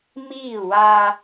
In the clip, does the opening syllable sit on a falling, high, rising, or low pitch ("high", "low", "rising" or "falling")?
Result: falling